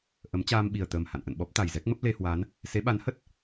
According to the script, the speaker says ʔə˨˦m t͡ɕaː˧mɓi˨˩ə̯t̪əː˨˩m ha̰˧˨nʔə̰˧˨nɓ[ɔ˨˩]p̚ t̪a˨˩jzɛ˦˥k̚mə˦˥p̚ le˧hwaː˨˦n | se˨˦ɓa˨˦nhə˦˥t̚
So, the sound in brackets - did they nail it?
no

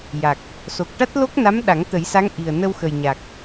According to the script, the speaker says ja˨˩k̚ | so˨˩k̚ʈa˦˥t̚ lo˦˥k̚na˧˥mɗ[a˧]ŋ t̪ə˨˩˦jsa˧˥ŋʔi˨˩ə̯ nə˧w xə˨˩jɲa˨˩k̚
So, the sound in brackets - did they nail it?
no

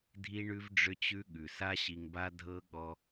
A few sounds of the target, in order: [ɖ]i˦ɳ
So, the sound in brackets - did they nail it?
no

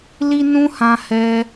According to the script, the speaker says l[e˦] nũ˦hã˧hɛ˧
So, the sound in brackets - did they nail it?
no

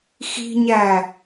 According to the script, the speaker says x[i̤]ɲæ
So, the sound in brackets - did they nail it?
yes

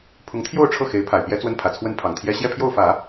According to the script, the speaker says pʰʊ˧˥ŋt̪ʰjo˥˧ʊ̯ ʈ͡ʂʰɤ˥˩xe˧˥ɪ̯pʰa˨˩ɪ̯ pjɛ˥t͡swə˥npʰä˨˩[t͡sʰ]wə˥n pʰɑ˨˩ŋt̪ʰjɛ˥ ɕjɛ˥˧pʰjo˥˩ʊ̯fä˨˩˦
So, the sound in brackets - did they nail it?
yes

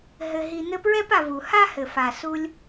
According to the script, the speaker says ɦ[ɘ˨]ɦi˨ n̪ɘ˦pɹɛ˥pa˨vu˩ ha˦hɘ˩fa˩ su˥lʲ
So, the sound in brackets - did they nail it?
yes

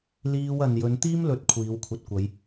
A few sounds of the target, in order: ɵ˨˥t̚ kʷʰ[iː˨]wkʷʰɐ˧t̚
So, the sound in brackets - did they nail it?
no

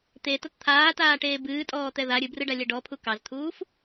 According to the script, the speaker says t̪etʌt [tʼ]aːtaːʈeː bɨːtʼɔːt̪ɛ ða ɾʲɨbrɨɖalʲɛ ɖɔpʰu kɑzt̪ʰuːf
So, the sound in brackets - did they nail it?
no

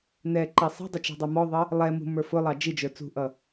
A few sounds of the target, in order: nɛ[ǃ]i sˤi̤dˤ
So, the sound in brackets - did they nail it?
yes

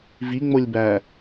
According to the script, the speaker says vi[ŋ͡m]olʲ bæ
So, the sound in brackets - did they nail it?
yes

